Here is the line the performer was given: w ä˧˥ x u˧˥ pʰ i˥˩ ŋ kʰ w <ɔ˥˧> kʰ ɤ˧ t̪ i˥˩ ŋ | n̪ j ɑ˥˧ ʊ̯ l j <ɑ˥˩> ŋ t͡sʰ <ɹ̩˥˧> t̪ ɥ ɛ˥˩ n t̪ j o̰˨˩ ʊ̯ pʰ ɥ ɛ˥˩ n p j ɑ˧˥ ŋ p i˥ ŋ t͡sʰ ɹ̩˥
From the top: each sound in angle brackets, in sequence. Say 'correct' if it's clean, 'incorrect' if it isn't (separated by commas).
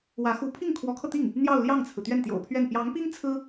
incorrect, correct, incorrect